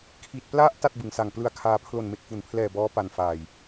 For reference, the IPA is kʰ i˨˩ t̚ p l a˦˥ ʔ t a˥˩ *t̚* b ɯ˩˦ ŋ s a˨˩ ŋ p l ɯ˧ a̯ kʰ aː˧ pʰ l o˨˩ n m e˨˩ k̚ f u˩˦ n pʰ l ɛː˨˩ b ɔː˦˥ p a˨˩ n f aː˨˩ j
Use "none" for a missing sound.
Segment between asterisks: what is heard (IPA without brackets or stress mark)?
t̚